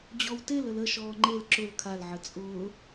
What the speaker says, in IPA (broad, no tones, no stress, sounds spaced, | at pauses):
d͡ʑ ɔ w t e l ə l ə ʃ ɔː ŋ͡ǃ e l ǁ ʊ l kʰ a l ʕ ə t͡sʼ ʊː